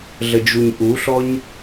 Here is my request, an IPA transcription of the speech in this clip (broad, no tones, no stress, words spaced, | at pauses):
ɮəd͡ʒuɲʔuɬɔɲ